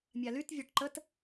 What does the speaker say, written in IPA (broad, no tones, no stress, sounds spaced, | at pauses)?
mʲ a l y t vʲ ɒ ʈ ǃ ə t